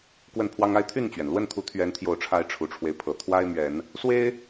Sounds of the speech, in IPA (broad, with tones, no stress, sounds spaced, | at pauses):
k w ə˥˨ n pʰ w ɑ˦ ŋ a˦ ɪ̯ t̪ʰ y˥˨ n t͡ɕ ɥ ɛ˩ n l w ə˥˨ n t̪ʰ u˨˦ t̪ʰ ɥ ɛ˨˦ n t̪ʰ j o˨˩ ʊ̯ ʈ͡ʂʰ a˨˦ ɪ̯ ʈ͡ʂʰ u˨˩ ʈ͡ʂʰ w e˦ ɪ̯ pʰ ɤ˨˩ t̪ʰ w a˦ ɪ̯ m ɥ ɛ˨˦ n | s w e˦ ɪ̯